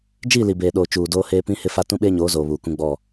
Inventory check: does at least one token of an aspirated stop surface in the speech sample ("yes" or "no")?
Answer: no